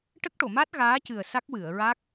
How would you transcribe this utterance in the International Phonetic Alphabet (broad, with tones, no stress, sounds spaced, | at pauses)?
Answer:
ʈ ə˦˥ k̚ ʈ o˨˩˨ m a˦˥ t̚ ɣ aː˧˥ c ɨ˨˩ ə̯ s a˦˥ k̚ w ɨ˨˩˨ ə̯ ɹ a˦˥ k̚